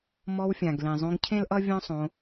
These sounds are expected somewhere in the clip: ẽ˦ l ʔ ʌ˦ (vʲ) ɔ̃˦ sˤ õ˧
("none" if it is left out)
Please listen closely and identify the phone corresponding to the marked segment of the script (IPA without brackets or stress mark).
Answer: vʲ